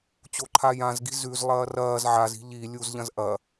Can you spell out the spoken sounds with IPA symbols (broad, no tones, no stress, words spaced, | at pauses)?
t͡ɕoǃʰajãzɡi̤ zʉz lˠɐːrɐːz ʕaz i̤ʎi lʲuzʎɐ̃zʔɐ